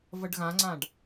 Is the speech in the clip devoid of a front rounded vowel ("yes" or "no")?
yes